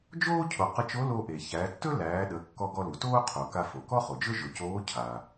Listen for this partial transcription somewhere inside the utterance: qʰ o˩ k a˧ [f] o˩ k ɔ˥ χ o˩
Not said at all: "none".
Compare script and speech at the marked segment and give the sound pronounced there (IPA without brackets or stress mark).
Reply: f